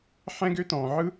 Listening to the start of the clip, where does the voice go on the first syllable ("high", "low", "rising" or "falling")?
high